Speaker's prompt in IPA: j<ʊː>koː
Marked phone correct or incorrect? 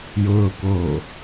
correct